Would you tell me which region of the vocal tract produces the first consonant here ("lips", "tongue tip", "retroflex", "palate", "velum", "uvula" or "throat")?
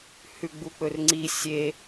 throat